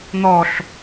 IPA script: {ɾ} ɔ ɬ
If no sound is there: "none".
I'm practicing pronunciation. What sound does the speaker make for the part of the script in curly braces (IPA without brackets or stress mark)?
n̪